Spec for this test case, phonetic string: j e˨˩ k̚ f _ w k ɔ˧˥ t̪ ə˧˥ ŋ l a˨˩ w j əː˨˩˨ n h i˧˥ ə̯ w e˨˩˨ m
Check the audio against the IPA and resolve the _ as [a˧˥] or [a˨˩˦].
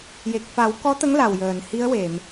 a˨˩˦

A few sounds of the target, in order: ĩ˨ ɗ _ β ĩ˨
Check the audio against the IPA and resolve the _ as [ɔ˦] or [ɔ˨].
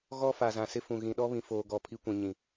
ɔ˦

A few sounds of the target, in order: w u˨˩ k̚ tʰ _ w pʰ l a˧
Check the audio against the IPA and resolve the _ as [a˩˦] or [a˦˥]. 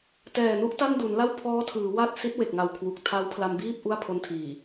a˦˥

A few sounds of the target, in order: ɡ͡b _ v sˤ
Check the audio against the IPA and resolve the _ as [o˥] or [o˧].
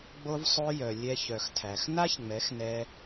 o˧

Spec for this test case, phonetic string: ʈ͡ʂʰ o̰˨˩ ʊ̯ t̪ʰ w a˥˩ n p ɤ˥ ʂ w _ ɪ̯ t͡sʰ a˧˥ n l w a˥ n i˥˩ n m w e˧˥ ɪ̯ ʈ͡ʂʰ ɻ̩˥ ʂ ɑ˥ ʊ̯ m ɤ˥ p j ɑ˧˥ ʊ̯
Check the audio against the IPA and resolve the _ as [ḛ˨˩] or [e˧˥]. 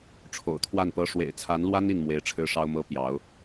ḛ˨˩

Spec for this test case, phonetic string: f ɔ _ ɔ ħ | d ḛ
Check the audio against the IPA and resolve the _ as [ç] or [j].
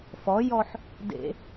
j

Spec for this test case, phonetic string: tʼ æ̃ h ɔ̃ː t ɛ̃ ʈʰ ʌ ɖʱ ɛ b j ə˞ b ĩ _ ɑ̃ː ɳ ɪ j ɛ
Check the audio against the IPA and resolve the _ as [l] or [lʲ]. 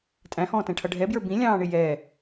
lʲ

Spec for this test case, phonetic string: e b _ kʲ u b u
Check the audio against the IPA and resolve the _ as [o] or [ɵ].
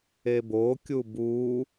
o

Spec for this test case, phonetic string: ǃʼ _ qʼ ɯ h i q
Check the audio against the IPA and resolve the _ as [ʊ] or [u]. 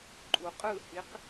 u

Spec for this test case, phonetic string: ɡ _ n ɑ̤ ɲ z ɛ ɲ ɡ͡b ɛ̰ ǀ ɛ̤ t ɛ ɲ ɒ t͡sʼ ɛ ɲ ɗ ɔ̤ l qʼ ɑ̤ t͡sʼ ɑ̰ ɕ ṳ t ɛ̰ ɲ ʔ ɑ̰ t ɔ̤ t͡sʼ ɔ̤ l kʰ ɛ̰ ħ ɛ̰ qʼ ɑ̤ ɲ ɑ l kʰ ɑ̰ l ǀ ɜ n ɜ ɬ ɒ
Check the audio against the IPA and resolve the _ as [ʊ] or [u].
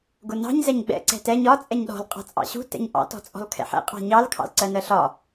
ʊ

